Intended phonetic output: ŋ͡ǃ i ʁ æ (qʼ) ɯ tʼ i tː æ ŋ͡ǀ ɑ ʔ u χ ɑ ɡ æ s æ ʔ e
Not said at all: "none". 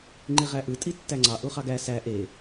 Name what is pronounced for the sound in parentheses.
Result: ʔ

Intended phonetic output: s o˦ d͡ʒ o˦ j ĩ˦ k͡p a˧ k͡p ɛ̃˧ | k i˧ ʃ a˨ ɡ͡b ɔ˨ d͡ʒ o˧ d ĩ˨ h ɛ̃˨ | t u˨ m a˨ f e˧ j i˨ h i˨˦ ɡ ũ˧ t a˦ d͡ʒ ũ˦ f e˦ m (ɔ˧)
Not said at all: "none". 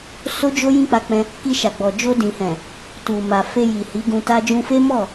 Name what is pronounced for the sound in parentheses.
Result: ɔ˦˨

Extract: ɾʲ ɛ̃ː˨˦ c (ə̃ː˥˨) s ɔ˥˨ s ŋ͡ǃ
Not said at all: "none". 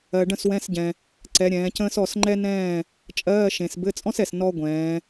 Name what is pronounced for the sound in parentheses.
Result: ə̃ː˥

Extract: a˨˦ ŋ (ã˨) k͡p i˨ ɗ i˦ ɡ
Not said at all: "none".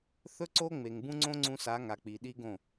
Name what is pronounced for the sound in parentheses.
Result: a˨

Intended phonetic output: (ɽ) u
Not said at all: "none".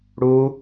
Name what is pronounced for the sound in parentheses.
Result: ɽ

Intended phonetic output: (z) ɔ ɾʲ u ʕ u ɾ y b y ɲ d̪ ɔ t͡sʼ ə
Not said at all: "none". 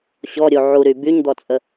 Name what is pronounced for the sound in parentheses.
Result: ɕ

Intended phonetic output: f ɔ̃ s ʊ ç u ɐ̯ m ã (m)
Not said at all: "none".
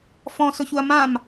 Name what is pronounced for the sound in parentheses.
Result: m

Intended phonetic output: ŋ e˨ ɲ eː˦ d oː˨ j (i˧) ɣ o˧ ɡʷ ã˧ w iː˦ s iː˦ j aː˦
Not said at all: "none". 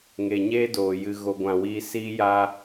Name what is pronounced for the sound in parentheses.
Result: ɨ˧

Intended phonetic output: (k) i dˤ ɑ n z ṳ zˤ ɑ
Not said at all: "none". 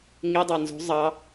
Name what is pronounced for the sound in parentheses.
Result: ŋ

